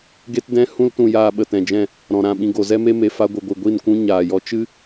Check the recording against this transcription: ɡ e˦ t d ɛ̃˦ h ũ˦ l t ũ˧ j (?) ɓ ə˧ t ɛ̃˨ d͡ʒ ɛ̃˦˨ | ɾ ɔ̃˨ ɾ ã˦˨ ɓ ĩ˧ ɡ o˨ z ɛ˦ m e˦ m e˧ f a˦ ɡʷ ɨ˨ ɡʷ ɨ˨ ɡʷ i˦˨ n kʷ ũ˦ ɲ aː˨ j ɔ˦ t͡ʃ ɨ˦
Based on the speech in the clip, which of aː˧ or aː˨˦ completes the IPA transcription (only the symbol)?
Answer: aː˧